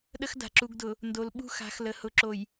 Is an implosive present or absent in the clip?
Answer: present